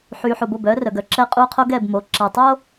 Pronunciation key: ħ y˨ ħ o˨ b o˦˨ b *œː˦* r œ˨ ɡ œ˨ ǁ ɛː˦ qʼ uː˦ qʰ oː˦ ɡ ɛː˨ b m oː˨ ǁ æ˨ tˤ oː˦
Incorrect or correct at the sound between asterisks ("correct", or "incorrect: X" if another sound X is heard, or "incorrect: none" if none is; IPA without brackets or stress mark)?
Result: correct